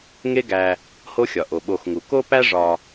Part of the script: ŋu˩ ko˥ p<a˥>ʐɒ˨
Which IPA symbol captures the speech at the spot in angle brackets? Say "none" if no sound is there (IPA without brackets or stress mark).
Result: æ˥